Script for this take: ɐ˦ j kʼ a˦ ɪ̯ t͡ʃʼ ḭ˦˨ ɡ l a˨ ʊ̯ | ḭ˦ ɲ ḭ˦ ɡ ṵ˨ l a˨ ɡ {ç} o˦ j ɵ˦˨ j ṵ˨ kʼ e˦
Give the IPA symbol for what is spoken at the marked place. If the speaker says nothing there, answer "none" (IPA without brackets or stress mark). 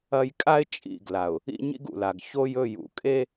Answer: ç